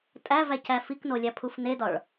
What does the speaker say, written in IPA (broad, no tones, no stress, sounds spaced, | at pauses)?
tʼ æ v æ c æ f i k n o lʲ æ pʰ u f n e d ɒ ɭ